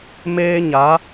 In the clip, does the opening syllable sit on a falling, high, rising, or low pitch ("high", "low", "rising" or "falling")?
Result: high